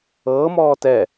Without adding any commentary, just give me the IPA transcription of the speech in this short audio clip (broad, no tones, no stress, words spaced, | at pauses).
ɤːmɔː tɛ